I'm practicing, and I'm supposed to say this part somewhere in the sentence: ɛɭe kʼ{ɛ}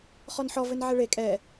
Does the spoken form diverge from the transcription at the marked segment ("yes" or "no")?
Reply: no